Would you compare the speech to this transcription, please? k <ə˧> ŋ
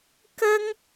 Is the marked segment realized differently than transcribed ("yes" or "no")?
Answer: no